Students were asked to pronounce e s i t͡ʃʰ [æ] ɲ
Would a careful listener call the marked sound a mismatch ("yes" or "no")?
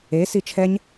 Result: yes